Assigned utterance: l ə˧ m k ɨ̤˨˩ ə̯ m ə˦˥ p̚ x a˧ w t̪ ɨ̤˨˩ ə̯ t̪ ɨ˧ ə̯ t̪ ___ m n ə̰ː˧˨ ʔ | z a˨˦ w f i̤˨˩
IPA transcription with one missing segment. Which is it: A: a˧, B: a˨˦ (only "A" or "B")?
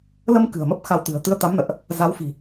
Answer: B